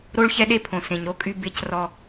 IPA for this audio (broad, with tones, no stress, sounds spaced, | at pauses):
ɾ o˦ ɭ ç ɛ˦ ɗ e˦ pʰ õ˨ s ẽ˨ ɲ ɾ o˦ kʼ y˦ b e˦ c r ɔ˦